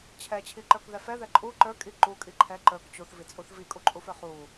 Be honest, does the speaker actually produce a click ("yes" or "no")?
yes